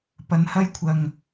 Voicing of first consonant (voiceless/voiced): voiceless